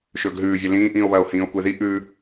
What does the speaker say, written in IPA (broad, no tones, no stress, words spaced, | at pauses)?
ʃɵːɡɦʉːvʲɐ lĩːʔĩːo̯βɐːo̯ hĩːo̯kʷeði ʔʉ